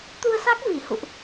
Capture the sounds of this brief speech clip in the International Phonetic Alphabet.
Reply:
t̪ u˧ ə̯ s a˦˥ k̚ v i˧˩ h ṵ˧˨ ʔ

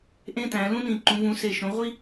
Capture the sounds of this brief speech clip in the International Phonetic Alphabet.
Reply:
ʔ ẽ˦ t æ̃˩˧ l ũ˦ n ĩ˨˩ ǃ ũ˩˧ v ũ˩˧ s e˨˩ ʃ õ˩˧ ʁʷ i˦

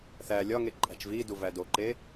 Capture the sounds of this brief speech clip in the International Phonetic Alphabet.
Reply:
θ æ lʲ ɒ ŋ e ǃʼ æ̤ t͡ʃ v i d u v æ d o ǃ e

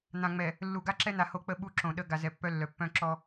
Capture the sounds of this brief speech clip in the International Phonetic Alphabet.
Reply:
n̪ ã˨ ŋ͡m ɛ˨ | lː u˨ ɡ a˦ ǁ ɛ˦ n̪ a˨ h o˦ k͡p ə˦ ɓ u˦ ǁ õ˨ ɗ ə˦ ɡ a˨ z ɛ˨ pː œ˦ lː œ˨ pː œ̃˦ ǁ ɔ˦

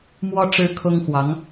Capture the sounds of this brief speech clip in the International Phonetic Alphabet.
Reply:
m w ɔ˥ ʈ͡ʂ ɻ̩˥ kʰ ʊ˥ ŋ x w ɑ˧˥ ŋ

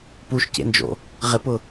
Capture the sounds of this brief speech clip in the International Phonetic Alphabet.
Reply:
p u ʃ c ḛ n d͡ʒ o̰ | ʁ ɪ p ʊ

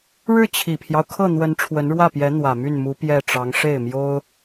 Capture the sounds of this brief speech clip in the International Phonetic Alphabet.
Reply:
ɻ ɻ̩˥˩ t͡ɕʰ i˨˩ pʰ j ɑ˦ ʊ̯ kʰ ɤ˥˩ n̪ w ə˧˥ n ʈ͡ʂʰ w ə˧˥ n ɻ w ä˥˩ p j ɛ˧˥ n̪ w ä˨˩ m y˥˩ n m u˧˥ p j ɛ˥˩ ʈ͡ʂ ɑ˧˥ ŋ ʂ e˥˩ ɪ̯ m j o˥ ʊ̯

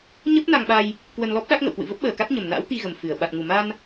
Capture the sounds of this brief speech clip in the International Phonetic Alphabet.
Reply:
ɲ ə˦˥ p̚ n a˧ ŋ ɓ a˧ j | k w ə˧ n l ɔ˦˥ p̚ ɗ a˦˥ k̚ ŋ ə̰˧˨ w k w ɨ̰˧˨ v ə˦˥ p̚ ɓ əː˨˩ k a˦˥ t̚ ɲ ə˨˩ m n a̰ː˧˥ w t̪ i˧ ɣ ə˨˩ m f ɨ˧˩ ə̯ ɓ a˨˩ t̚ ŋ u˨˩ m a˧ n

